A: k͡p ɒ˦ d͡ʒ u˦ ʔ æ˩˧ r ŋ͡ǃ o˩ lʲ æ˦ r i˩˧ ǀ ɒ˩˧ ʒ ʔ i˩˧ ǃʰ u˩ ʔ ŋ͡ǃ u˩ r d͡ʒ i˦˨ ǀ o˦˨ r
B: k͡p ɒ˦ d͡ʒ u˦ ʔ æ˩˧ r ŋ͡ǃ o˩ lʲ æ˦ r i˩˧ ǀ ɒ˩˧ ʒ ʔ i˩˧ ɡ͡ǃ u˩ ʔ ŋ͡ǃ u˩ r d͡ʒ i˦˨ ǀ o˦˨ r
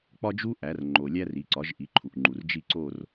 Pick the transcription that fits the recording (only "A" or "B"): A